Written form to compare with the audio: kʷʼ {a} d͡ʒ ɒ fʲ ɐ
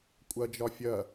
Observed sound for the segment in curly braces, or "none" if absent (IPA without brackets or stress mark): ɐ